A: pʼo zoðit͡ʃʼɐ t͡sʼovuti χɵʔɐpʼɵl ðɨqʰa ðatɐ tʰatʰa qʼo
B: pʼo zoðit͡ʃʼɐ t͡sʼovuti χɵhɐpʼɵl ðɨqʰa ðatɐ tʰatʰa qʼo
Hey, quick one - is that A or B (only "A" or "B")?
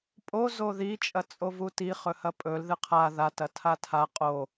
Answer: B